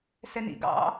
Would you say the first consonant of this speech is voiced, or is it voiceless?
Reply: voiceless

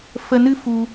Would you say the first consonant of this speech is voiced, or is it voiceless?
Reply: voiceless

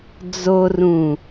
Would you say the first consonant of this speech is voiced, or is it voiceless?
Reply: voiced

